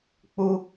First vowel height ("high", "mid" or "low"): high